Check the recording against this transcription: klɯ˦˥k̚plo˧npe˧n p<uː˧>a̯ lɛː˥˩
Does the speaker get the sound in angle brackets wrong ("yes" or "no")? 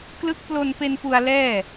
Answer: yes